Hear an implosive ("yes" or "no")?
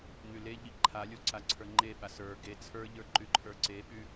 yes